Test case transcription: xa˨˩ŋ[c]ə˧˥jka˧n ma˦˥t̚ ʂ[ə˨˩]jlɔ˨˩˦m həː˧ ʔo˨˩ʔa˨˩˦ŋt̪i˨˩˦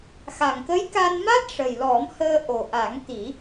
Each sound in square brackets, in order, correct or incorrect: incorrect, correct

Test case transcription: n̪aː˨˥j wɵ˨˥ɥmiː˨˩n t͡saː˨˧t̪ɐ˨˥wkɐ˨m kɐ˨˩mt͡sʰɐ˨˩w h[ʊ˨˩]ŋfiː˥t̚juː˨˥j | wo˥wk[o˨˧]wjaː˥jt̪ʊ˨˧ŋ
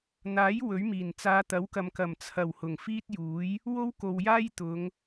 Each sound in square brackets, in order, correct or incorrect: correct, incorrect

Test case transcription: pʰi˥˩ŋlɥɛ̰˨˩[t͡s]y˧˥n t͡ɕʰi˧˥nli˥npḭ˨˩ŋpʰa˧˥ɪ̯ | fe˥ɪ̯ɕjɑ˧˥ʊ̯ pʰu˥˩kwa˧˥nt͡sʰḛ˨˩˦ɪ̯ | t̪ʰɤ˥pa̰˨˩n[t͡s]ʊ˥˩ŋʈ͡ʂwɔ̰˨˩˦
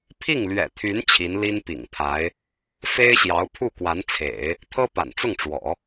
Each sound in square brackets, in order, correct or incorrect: incorrect, correct

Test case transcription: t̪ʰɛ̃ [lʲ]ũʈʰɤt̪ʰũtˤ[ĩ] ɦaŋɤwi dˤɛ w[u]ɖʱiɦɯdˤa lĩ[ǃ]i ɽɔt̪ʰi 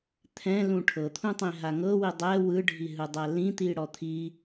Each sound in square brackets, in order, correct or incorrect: incorrect, correct, incorrect, incorrect

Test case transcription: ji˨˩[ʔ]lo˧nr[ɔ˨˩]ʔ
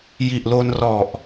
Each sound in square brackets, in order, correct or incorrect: correct, correct

